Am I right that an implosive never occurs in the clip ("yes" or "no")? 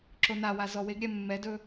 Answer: yes